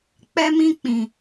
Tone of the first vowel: high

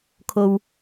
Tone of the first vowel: low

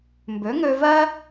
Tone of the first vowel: rising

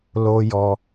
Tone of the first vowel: high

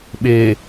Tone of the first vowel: low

